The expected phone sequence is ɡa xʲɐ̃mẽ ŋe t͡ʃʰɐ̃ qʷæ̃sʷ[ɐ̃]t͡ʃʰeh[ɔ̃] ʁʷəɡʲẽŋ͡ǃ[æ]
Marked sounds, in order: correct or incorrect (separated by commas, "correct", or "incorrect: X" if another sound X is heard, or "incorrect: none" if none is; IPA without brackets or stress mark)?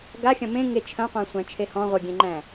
incorrect: æ̃, correct, incorrect: æ̃